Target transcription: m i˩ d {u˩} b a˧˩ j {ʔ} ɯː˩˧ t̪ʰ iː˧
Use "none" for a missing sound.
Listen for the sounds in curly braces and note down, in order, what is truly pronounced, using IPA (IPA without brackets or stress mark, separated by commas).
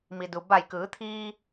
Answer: u˩, k